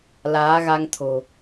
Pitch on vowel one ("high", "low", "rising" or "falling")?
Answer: rising